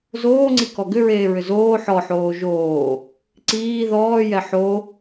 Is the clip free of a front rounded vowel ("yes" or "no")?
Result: no